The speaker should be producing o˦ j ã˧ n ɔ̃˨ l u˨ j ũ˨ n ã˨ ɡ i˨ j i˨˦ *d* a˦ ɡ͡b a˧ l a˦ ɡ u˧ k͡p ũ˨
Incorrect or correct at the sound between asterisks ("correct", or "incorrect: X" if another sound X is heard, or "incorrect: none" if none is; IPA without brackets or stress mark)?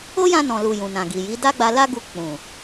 correct